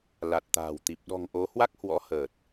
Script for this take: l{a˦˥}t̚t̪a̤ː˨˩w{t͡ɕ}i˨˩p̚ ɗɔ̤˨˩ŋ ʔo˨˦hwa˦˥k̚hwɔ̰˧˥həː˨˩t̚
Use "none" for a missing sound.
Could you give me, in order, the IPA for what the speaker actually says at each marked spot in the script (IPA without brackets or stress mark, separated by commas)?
a˨˩, t̪